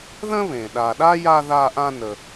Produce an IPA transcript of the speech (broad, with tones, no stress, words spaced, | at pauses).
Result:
ðə̃˥βẽ˩ ɗa˨ɗa˥ja˦ ða˦ʔã˦ nə˨